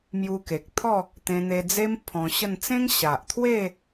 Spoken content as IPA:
m j u˧ k e˨ k̚ t̪ʰ ɔ˥˧ | t̪ ẽ˧ n̪ e˧ d͡z e˦ m pʰ ɔ̃˧ ɕ ə˥˧ n t͡s ẽ˦ ŋ ɕ a˨ ʔ t̪ʰ w e˥˧

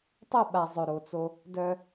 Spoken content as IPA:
tˤ ɵ˦˨ ɓ a˨ zˤ ɵ˨ ɾ o˨ t͡s o˦ | d œ˦

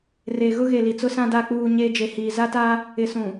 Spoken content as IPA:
r e˨ ɣ ʊ˦ ɣ e˨ l i˨ t͡s ʊ˦ s ã˦ d a˦˨ k͡p uː˦˨ ɲ eː˦ d͡ʒ e˨ h iː˨ z a˦ t aː˦ | ɪ˨ s ũ˨

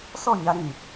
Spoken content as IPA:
s ɔ˦˨ ɲ a˧ ɾ ĩ˨

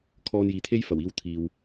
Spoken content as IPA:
kʰ ɔː˧ n j iː˨ t̪ʰ e˥ j f ɐ˨˩ w iː˧ w t̪ʰ iː˨ w

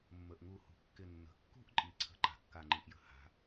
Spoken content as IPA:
mː ə˩ ʔ ŋ u˧˩˧ h ṳ˩ kː ɪ˧˩ nː ə̤˩ kː ṳ˥˧ ʔ ǃʼ i˩˥ ǀʰ ə̤˧˩ ǃ a̤˩˥ kː a˧˩ ŋ͡ǃ i˧˩ ʔ j ə̤˧˩˧ h a̤˩˥

